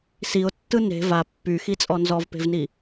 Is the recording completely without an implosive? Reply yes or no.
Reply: yes